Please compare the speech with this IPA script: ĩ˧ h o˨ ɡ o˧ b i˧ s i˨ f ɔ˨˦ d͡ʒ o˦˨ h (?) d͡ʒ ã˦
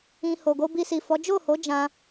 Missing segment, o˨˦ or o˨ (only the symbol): o˨˦